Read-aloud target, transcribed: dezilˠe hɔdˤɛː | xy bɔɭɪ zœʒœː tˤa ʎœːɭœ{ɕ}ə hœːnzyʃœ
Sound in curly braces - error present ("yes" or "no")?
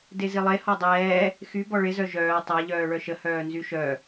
yes